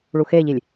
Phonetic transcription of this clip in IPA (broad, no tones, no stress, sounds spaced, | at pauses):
ɭ u x e ʎ i lʲ